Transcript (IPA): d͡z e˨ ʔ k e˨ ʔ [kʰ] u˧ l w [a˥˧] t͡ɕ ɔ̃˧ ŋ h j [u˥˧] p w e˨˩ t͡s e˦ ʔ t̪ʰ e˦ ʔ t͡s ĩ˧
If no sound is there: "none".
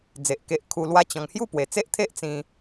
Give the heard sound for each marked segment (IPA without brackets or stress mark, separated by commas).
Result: kʰ, a˦, u˥˧